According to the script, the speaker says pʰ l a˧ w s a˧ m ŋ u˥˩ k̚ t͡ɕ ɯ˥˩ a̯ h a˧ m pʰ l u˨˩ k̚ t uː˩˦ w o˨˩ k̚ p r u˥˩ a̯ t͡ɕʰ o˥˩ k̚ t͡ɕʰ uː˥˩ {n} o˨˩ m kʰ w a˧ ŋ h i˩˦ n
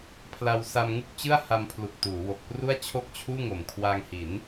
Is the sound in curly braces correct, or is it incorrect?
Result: incorrect: ŋ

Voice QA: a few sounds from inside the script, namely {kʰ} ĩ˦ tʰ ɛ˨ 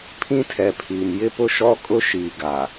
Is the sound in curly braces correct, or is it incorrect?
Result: incorrect: pʰ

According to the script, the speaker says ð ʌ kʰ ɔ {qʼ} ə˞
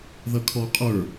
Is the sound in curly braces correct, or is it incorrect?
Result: correct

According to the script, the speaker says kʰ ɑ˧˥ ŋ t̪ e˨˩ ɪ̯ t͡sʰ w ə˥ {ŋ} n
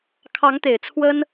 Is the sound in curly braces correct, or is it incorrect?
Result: incorrect: none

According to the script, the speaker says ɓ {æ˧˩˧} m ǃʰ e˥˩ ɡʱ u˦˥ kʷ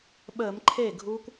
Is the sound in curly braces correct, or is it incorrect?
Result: incorrect: ə˧˩˧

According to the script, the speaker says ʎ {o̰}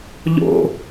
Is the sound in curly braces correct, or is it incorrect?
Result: correct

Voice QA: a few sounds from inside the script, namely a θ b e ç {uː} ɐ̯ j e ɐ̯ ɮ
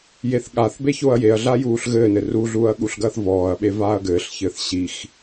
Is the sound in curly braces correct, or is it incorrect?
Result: incorrect: oː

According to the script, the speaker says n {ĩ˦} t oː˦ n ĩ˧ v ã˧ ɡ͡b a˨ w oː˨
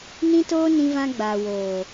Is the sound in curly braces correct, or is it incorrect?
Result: correct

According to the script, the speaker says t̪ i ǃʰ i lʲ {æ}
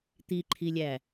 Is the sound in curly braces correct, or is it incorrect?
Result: correct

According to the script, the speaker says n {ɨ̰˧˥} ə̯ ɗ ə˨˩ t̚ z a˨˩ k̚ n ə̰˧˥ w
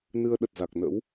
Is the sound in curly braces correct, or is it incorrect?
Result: incorrect: ɨ˧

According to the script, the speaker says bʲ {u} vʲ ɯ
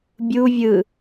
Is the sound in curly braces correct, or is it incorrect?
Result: correct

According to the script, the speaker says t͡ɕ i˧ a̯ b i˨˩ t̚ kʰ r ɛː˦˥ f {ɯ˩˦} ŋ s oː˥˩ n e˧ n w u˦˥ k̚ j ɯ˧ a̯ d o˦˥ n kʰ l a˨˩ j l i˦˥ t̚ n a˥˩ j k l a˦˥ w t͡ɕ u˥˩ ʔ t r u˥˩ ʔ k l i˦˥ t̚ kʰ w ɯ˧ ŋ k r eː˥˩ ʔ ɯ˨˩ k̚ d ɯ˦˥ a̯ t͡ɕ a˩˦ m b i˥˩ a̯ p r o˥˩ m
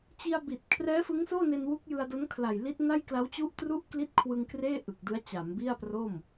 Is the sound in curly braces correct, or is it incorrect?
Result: incorrect: ɯ˦˥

